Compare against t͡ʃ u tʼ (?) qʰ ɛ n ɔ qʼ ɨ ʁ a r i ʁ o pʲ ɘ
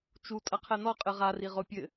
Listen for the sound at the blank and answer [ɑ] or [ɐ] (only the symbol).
ɐ